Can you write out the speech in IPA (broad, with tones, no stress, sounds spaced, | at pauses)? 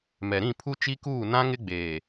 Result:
m ɛ˨ ɾ ĩ˦˨ pʰ u˦ t͡ʃ i˦ k uː˦˨ n ã˦ ŋ ɪ˦ ɡ͡b eː˨